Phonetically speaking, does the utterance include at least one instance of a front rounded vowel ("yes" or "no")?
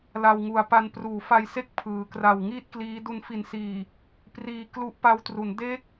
no